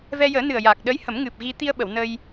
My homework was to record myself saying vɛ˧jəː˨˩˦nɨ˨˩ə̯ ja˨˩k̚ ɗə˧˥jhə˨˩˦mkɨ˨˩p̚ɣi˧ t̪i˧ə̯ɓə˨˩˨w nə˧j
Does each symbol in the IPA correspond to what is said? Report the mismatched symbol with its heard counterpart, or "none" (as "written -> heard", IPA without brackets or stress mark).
k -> ŋ